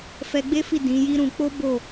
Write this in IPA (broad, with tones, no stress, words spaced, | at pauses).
fɛ˧ɡ͡be˦fi˦˨ dĩ˨˦ji˦ɾũ˧ k͡po˦ bo˦˨